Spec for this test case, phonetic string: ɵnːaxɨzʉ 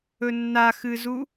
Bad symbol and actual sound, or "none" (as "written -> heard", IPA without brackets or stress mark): ʉ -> u